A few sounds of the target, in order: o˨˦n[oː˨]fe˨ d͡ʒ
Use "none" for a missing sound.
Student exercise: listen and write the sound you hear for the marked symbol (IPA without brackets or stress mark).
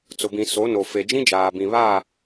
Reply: o˨